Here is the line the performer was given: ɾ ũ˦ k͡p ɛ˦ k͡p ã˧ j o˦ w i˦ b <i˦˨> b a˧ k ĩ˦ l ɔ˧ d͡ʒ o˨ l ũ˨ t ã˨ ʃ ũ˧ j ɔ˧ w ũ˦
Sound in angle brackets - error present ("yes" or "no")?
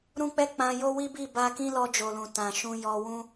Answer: no